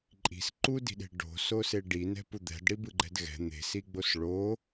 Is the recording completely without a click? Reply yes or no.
no